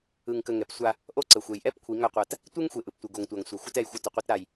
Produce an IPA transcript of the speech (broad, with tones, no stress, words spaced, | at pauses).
ɯ˨ŋkə˨ ŋɛ˨psʷa˦ | ʔo˦ǀə˨xʷe˨j ʔɛ˦p kʷʰi˨˦ŋa˦qʷa˦˨t | tʷe˦ŋxʷe˨ ʔɯ˨ptʷɯ˨ɡo˨ŋtʷa˨ŋ sʷa˨ xʷɯ˦tɛ˦˨jxʷɯ˦ tə˨qʷe˦t ɾa˦j